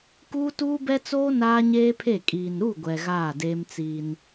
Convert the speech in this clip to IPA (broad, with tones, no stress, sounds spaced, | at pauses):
k uː˦ t uː˦ b ɛ˦ t͡s oː˦ n aː˦ ɲ eː˦ pʰ e˦˨ kʼ iː˨ n ɾ u˦˨ ɡʷ ɛ˨ ɣ aː˦˨ d e˦ m t͡s iː˦ n